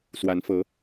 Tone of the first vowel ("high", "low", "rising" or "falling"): rising